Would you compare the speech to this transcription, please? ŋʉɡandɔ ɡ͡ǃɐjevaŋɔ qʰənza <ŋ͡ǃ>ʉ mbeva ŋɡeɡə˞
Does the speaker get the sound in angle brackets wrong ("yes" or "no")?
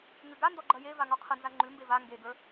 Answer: no